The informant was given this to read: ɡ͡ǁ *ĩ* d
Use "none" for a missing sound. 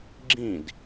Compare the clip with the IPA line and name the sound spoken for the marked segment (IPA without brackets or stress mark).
ĩ